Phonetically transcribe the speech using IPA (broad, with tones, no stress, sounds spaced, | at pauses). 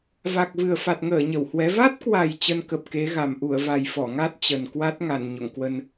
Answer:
v a˨˩ k̚ v ɨ˨˩ ə̯ f a˨˩ t̚ ŋ əː˧˩ ɲ ə˧˩ w h w ɛ˨˦ v a˦˥ t̚ k w a˨˩ j t͡ɕ ə˧ n k ə˨˩ p̚ k e˨˦ ɣ a˨˩ m ʔ u˧˩ ə̯ v a˨˩ j f ɔ˧˩ ŋ a˦˥ t̚ t͡ɕ ə˨˩ n k w a˦˥ t̚ ŋ a˧˩ n ɲ o̰˧˨ ŋ k w ə˧ n